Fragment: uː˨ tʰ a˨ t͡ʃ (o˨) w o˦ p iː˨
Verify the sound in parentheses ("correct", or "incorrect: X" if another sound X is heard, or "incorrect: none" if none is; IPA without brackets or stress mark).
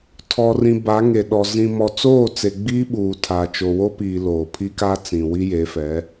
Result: correct